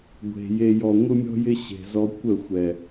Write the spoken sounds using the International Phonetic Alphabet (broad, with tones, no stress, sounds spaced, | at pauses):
ɡʷ e̤˨ j e˨ j ɔ˨ ŋʷ ɯ˦ mʲ ɔ̤˦ j ɪ˦ ɕ e̤˨ z ɔ˧ kʷ ə˦˨ xʷ ɛ˨